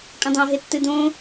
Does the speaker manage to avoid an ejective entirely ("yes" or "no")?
no